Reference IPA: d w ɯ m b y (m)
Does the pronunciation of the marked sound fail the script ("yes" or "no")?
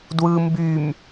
no